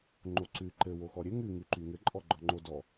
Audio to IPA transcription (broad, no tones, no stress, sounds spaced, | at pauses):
ŋ͡ǃ o ǀ ʉ ǃ ɘ w o x ɔ ɾʲ ɘ ŋ ʉ ŋ ʉ ǃ y ŋ ɘ ǃʼ ɔ ɡ͡ǃ ɔ ŋ͡ǃ o d ɔ